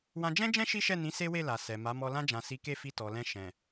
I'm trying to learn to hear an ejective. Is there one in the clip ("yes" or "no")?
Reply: no